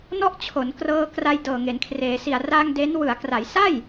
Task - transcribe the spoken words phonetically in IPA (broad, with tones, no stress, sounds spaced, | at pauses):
n ɔ˥˩ ʔ t͡ɕʰ o˩˦ n k r ɤː˧ k r a˧ j d ɤː˨˩ ŋ e˩˦ n kʰ r eː˩˦ s i˨˩ a̯ r a˧ ŋ d e˦˥ n w ɯ˩˦ a̯ k r a˩˦ j s a˥˩ j